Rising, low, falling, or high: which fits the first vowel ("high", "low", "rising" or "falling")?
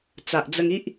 low